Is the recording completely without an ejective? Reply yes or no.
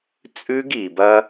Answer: no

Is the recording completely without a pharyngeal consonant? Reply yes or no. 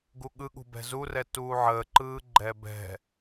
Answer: no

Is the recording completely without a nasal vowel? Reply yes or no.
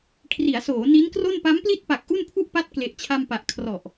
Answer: yes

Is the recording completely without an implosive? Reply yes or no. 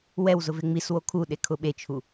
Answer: no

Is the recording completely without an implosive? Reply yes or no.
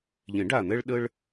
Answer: no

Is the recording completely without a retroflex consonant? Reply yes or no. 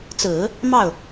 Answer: yes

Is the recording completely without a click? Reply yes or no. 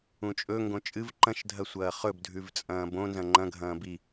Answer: no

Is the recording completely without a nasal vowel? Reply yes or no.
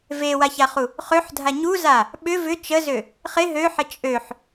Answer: yes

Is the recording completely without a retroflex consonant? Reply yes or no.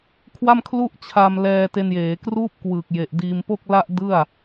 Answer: yes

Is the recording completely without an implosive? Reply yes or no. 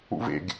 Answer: yes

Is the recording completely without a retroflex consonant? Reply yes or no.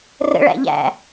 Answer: no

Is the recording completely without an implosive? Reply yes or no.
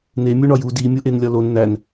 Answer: yes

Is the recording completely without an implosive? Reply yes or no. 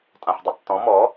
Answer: yes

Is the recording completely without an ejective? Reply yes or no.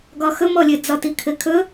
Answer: yes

